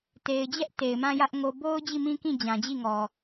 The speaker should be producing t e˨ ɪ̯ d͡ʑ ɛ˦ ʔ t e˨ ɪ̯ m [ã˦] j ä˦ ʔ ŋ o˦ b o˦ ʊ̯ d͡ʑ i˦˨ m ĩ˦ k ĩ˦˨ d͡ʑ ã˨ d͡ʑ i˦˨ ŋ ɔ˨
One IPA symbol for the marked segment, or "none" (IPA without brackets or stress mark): ã˦